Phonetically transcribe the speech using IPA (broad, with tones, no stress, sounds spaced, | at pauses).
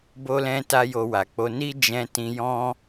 b o˦ l ɛ̃˦ t a˦ j o˧ w a˨ k͡p o˧ n i˦ d͡ʒ ɛ̃˧ t ĩ˧ j ɔ̃˦